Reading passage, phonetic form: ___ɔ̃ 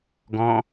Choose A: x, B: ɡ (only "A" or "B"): B